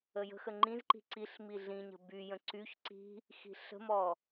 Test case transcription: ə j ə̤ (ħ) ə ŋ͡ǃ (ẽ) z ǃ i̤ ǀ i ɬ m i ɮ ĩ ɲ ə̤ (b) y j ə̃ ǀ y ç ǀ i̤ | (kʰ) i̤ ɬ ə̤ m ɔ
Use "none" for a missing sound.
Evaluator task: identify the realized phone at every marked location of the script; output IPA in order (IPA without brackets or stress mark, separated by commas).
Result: x, ĩ, b, x